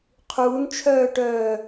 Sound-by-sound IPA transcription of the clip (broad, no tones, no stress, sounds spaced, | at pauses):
qʰ uː n t͡ʃʰ œː ʈ œː